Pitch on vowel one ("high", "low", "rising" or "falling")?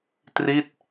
falling